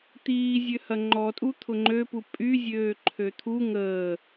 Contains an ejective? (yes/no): yes